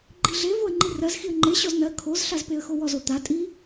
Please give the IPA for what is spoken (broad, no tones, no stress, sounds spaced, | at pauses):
ɡ͡ǃ i ɮ e v o ə̯ ŋ͡ǃ i r ɜ z x i ə̯ ŋ͡ǃ e ɕ ɔ z n ɜ kʰ o z ɬ a z p e ə̯ x o w ɔ z o t̪ a tʼ i